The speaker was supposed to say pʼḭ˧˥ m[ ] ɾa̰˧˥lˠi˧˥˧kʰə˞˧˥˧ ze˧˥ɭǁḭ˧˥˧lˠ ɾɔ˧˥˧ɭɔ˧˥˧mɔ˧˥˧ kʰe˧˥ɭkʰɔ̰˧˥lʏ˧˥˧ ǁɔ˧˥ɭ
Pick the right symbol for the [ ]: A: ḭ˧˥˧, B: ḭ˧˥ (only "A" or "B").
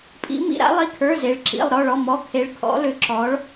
A